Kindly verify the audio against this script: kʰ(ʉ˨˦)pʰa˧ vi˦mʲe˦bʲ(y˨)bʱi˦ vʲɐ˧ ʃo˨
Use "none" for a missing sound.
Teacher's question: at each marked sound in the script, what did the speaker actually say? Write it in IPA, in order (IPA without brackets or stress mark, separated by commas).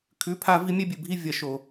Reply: ʉ˨˦, ɨ˨